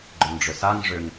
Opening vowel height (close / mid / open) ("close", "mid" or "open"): close